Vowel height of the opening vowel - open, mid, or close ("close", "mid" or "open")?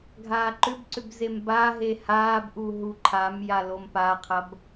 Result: open